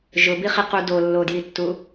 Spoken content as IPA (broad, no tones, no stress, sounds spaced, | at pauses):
ʒ ʊ b i χ i q u d o lː o d j i tː u